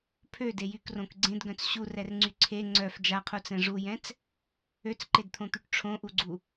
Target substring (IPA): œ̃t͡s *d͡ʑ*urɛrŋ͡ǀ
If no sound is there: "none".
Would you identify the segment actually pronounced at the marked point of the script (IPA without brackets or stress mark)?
ɕ